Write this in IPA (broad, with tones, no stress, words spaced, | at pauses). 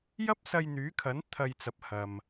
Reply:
jɐ˥p̚sɐ˧jn̪yː˨˥kʰɐ˨˥n t̪ʰɐ˧jt͡sɐ˨˥p̚hɐ˨m